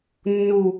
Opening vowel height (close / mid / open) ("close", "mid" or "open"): close